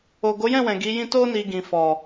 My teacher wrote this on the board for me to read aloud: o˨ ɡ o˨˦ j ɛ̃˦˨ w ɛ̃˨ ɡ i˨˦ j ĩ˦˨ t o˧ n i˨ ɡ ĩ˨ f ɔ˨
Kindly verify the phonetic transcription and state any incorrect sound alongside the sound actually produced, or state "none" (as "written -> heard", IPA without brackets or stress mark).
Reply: none